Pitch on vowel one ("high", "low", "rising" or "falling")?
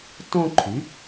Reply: high